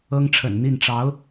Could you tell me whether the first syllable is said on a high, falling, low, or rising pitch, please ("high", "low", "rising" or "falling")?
high